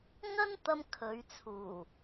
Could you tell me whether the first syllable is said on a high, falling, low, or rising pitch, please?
high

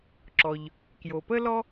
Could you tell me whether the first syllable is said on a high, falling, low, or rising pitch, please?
low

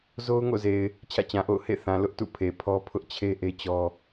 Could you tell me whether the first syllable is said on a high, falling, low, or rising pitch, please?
high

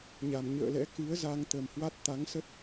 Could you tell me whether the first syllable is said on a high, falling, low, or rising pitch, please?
low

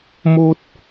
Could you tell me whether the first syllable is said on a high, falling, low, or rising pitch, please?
high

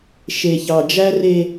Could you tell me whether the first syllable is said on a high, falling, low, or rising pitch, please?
low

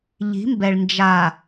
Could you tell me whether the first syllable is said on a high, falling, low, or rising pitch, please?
rising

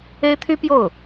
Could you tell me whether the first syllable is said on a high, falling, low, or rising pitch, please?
high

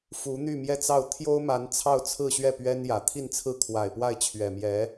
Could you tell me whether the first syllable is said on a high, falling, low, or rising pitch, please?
rising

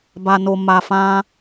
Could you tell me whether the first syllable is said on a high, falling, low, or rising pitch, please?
low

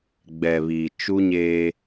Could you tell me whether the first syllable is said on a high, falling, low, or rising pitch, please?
low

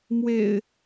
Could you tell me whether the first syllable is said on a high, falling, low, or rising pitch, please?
low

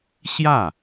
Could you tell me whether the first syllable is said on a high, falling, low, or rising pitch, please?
falling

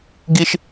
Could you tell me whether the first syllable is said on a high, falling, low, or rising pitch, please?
high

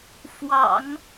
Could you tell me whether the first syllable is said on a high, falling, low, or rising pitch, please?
low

